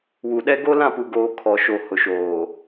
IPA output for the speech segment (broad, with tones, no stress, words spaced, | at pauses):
wu˨ɗɛ˦ ɡo˦lã˦˨pu˨ɡoː˨ kʰɔ˨ʃo˨ hʊ˨ʃoː˨